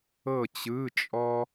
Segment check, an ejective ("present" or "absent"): present